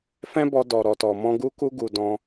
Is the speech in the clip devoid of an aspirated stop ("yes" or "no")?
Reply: yes